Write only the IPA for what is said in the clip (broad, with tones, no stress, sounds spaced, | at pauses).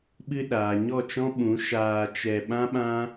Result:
ɓ ɨ˧ ɗ aː˨ ɲ ɔ˦˨ t͡ʃ ɔ̃˦ ɓ ũ˨˦ ʃ aː˧ t͡ʃ ɛ˧ ɓ ã˦ ɓ ã˦